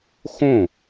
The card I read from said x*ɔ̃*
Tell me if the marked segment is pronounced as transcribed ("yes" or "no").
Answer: no